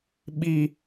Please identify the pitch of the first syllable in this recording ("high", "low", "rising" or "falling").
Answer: high